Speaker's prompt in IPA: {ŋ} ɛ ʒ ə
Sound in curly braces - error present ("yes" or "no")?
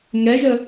no